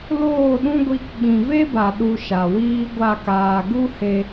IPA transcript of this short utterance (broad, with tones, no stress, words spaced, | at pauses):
loː˦˨ɗũ˦ɡʷi˧k ɓĩ˨ve˦ba˨ ɗu˧ʃa˨ wiː˦ɡʷa˦˨kaː˧ ɡu˦he˧